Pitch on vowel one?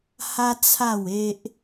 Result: high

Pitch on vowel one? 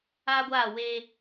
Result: high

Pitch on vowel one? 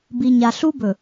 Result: low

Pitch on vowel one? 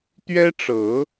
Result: high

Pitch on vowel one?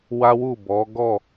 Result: high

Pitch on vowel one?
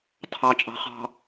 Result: low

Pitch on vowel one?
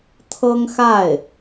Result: high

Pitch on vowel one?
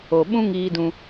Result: low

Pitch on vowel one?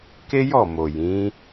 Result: high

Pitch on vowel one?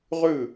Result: falling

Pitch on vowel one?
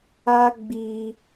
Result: high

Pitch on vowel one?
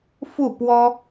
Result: falling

